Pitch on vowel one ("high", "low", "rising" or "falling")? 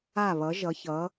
falling